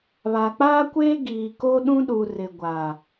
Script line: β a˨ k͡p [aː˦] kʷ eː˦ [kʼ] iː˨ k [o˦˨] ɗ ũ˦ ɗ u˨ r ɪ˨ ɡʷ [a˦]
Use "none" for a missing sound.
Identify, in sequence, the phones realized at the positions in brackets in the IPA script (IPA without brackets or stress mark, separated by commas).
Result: aː˦, ɡ, o˦, a˨